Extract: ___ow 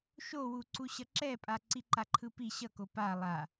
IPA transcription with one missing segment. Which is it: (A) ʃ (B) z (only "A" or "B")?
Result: A